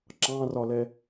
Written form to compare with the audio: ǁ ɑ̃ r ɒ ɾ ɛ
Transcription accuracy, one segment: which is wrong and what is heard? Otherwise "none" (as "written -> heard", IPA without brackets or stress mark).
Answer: ɾ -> l